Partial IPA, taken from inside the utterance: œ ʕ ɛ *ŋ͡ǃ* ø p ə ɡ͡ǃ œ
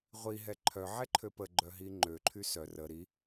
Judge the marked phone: incorrect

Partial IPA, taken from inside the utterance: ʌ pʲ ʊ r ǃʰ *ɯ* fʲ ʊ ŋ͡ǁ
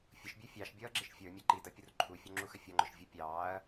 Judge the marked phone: incorrect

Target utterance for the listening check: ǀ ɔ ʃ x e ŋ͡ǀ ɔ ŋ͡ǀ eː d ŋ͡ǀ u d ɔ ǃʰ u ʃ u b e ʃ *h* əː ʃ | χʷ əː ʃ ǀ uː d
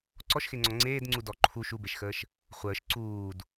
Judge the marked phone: incorrect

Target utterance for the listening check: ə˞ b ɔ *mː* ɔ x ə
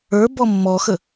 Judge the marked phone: correct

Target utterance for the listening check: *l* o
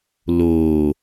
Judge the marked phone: correct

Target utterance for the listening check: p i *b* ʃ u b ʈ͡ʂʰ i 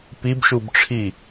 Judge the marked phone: correct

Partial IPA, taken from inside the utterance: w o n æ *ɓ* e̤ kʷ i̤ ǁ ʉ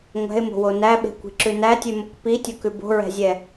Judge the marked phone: correct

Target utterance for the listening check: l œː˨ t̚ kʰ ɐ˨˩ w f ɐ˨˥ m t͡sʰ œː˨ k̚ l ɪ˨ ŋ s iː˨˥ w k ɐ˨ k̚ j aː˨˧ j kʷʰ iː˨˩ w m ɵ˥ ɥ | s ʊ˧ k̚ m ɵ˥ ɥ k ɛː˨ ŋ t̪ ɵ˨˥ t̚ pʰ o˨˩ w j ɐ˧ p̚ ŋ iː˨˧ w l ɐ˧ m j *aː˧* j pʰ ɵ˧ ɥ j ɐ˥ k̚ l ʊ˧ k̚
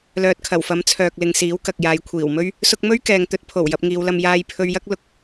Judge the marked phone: correct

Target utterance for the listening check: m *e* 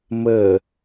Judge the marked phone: incorrect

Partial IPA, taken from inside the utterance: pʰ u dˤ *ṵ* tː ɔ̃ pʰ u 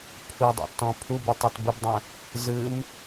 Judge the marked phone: correct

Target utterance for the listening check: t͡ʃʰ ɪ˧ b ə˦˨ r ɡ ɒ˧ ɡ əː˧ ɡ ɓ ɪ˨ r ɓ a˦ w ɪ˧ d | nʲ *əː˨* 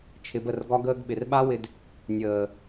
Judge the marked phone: correct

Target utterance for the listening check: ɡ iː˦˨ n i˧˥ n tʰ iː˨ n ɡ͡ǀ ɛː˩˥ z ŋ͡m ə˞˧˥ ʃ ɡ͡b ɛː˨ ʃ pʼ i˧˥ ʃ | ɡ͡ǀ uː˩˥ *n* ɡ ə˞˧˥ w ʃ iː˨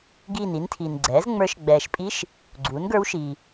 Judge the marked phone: correct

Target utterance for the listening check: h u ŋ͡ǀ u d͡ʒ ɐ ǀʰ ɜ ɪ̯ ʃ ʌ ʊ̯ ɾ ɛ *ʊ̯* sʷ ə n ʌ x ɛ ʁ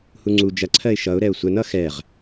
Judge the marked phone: correct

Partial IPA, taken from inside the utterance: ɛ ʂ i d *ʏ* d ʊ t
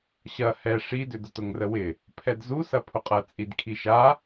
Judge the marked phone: correct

